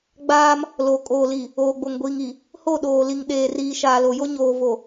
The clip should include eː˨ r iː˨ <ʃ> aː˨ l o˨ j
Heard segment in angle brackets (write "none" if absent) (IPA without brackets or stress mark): ʃ